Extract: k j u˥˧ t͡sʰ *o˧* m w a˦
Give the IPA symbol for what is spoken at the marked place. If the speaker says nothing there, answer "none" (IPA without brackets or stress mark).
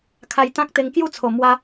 o˨˩